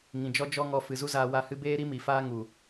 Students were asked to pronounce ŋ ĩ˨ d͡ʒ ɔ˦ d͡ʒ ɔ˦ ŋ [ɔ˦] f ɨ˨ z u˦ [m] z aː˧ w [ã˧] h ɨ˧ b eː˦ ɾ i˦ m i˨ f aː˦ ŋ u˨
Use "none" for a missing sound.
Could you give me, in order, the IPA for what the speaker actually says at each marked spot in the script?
ɔ˧, none, a˧

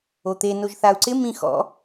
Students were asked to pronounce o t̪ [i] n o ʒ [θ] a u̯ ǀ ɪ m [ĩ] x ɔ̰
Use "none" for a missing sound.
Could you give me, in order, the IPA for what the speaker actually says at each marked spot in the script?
e, θ, ĩ

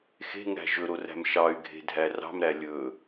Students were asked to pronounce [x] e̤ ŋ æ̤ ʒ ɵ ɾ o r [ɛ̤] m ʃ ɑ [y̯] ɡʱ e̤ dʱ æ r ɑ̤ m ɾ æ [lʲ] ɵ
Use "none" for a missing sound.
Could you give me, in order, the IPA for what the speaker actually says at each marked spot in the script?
x, æ̤, y̯, lʲ

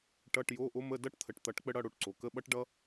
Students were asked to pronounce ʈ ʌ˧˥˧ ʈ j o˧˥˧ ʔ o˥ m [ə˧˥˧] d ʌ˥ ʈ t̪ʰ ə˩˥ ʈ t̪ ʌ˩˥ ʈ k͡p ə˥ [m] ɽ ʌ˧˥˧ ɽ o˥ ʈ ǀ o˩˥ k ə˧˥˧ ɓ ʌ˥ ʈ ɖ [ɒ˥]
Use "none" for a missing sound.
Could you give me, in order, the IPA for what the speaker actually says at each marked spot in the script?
ə˧˥˧, none, ʌ˥

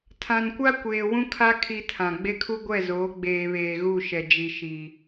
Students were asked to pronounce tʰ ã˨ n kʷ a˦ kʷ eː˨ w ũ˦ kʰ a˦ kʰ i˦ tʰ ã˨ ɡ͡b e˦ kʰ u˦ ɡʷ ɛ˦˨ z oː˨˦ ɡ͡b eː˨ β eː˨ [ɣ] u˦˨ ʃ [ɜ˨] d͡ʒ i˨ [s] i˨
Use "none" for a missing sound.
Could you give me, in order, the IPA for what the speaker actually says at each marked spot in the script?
ɣ, ɛ˨, ʃ

